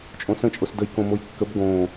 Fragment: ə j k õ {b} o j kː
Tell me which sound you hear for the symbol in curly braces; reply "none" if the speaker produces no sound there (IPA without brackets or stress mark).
m